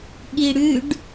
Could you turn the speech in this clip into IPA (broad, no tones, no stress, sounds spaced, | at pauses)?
ɠ i ɽ ʉ ɖ